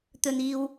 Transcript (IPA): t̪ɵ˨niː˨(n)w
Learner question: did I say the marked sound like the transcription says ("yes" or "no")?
no